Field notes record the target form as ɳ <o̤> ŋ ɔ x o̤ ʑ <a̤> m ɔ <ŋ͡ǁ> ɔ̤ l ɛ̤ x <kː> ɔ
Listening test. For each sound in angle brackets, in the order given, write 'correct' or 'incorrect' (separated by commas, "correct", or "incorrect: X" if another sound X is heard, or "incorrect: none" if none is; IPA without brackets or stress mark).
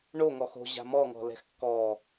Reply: incorrect: o, correct, incorrect: ŋ, correct